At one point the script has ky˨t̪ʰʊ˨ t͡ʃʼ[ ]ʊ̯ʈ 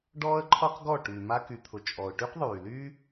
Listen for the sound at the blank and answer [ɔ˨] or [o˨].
ɔ˨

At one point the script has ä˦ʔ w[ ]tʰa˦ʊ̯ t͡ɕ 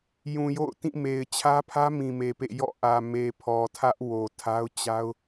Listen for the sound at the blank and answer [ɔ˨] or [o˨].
o˨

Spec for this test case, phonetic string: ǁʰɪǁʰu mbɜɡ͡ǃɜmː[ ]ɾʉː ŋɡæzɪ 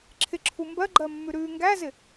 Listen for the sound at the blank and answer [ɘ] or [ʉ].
ʉ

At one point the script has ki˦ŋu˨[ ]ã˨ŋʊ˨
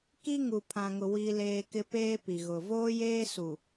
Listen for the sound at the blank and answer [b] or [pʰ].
pʰ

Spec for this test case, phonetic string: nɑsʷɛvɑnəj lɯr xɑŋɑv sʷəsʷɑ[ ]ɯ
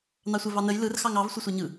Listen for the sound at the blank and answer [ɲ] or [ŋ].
ɲ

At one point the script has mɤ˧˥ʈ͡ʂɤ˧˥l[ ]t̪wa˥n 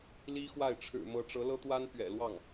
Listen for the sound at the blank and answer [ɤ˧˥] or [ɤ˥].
ɤ˥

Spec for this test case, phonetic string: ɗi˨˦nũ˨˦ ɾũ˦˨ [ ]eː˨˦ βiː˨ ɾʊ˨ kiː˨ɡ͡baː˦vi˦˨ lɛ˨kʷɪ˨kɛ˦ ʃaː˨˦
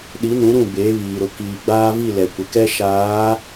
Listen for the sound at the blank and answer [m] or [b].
b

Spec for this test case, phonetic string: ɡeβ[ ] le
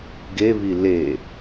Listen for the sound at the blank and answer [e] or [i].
i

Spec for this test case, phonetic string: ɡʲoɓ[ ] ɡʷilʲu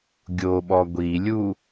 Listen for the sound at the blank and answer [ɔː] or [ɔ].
ɔ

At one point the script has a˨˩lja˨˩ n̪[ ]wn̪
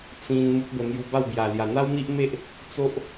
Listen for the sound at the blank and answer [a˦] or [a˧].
a˦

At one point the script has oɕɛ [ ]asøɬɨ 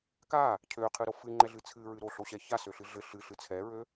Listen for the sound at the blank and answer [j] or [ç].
ç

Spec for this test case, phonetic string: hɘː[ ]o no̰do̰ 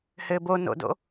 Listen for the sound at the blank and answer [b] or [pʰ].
b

